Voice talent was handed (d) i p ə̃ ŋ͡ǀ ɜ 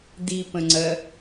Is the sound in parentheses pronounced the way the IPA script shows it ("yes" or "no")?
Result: yes